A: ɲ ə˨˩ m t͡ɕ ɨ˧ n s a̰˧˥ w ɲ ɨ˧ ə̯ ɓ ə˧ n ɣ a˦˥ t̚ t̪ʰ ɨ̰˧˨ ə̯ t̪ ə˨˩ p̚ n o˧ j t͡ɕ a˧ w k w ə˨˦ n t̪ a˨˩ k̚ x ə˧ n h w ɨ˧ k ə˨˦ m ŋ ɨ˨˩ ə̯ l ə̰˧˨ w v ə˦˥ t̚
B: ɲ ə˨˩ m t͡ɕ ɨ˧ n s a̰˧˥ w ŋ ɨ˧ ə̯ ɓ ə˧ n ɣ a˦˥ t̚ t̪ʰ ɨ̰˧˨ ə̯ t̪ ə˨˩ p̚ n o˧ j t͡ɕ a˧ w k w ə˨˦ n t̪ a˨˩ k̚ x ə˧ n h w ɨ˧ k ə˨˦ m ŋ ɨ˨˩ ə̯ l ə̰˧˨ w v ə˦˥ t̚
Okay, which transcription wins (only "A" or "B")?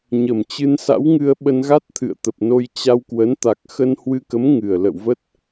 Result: B